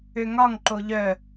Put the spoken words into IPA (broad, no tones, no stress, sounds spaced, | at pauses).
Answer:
ø ŋ ɒ ŋ ǃ o ʎ œ